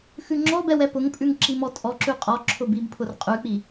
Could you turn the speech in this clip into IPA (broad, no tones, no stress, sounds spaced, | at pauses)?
x ʉ ŋ͡ǁ ɔ b ɛ w ɛ p ʊ ŋ pʼ ʉ ŋ ǁ i m ɔ tʼ ɔ ǁ ʉ qʼ ɔ ǁʰ ʊ b i b pʰ ʊ r qʼ ʉ k͡p i